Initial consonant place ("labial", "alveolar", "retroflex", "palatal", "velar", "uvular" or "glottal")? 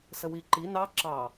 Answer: alveolar